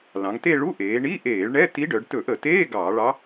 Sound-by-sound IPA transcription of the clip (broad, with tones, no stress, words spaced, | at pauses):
lɑ̃˩˧ŋte˥˧ ɭu˧˥˧ʔeː˩˧ ɳi˧˥˧ʔeː˧˩˧ɭɳɛ˧˥˧ ti˧˥ɖœ˩˧ɖ tɵ˧˩˧ʔə˧˩˧teː˧˥˧ ɡɑː˧˩˧ɭɑ˧˥